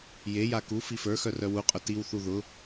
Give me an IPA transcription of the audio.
jeja ku fifə˞xœ rœwuqʼʊ tiwθu ðʊ

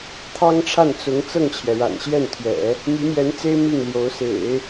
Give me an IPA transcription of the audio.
t̪ʰɑ˥ŋʈ͡ʂʰa˥˩n t͡sʊ˧˥ŋ t͡sɤ˥˩ŋt͡ɕʰjɛ˩ɻa̰˨˩n ɕjɛ˥˩nt̪ʰɥɛ̰˨˩˦ | my˧˥mjɛ˧˥nt͡se˥ɪ̯ mi˥˩ŋljo˧˥ʊ̯ sḛ˨˩˦ɪ̯

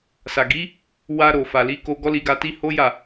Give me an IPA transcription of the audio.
sa˨ɡi˨˦ | wa˧ ɾo˨fa˨li˨˦ ko˧ ɡɔ˦li˧ɡa˧ti˦ ho˦ja˦˨

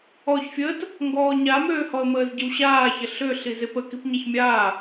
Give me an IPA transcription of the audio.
ɔçfʲəːt | ŋɡɔːɲamøːhɔə̯ məːzɟəwɕaːçɐ ɬø ɬizepə kipɲaçmʲaː

